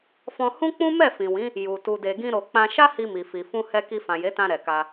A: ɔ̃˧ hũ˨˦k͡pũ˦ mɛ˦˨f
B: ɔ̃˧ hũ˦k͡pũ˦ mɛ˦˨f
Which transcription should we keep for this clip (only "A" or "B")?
B